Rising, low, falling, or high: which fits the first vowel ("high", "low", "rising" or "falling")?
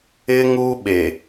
high